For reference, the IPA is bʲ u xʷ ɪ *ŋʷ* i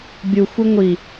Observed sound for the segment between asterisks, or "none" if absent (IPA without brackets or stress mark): ŋʷ